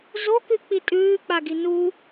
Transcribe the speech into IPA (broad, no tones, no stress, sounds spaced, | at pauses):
z o k ʉ k͡p i tʼ ʉː k͡p a ɡ i n u